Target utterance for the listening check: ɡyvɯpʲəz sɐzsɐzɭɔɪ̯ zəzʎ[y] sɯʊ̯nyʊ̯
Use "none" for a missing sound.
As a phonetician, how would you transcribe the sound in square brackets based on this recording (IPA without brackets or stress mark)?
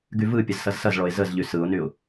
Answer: y